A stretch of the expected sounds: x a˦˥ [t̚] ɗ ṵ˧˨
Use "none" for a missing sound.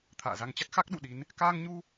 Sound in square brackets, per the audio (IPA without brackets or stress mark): k̚